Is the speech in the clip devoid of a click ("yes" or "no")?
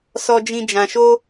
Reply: yes